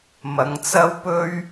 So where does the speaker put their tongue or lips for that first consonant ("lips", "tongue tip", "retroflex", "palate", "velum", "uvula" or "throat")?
lips